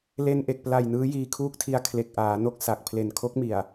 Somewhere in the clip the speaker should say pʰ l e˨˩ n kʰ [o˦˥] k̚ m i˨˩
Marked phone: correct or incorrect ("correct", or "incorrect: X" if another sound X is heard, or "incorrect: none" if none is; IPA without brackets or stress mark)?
correct